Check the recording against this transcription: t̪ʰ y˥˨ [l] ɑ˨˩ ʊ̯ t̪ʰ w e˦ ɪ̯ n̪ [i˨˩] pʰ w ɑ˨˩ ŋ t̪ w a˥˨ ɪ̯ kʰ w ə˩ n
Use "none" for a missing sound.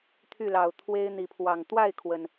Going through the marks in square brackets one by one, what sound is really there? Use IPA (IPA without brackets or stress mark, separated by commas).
l, i˨˦